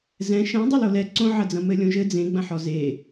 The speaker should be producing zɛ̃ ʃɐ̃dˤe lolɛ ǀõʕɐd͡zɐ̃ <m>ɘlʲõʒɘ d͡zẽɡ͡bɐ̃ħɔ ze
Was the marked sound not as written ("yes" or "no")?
no